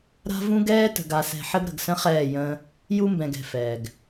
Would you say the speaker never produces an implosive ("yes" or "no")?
yes